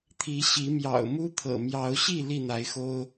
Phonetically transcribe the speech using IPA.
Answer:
t̪ʰi˨˦ɕi˨˦mjɑ̰˨˩ʊ̯ mu˦t̪ʰɤ̰˨˩ mjɑ˨˦ʊ̯ɕi˥˨ li˥˨n̪a˨˦ɪ̯xo˦ʊ̯

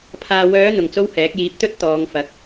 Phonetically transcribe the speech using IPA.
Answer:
pʰaː˨wœː˨˧ n̪ʊ˨ŋt͡so˥whɛː˨˥k̚ jiː˨˥p̚t̪ɵ˥t̚ t̪ɔː˨˧ŋfɐ˨˥k̚

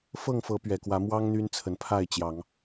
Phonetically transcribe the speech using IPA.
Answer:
fɤ˥˨ŋfɤ˨˦pɥɛ˨˩kwä˨˦ mwɑ˦ŋ n̪y˦nt͡sʰə˨˦n pʰa˥˨ɪ̯t͡ɕjɑ˨˦ŋ

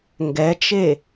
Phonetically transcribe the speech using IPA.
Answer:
ŋɡɛt͡ʃe

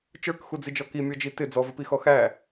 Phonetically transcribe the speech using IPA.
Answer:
t͡ʃə˞kxud͡zid͡ʒɔ kimʲɔd͡ʒi tɪ d͡zɔvəpixɔ xæ

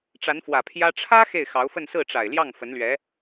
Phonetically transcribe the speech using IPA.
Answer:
ʈ͡ʂa˧˥nfwä˨˩pʰjä˥ ʈ͡ʂʰä˥ xe˥˩ɪ̯xɑ˧˥ʊ̯fə˥˧n sɹ̩˥˩ʈ͡ʂa˨˩ɪ̯ljɑ˥˩ŋ fə˧˥nlɥɛ˧˥

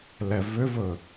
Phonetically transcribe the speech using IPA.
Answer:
lɛvʏvɵ

